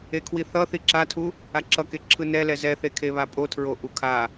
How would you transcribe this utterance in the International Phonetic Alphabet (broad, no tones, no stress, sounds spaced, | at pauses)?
e kʰ w i θ ʌ θ i ǁ a tʰ u | a ǁ ʌ k e ǁʰ ɯ n ɛ l ɛ z ɛ θ e kʰ e β a pʼ o tʰ ɹ o ʔ u kʰ a